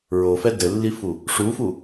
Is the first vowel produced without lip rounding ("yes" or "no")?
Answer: no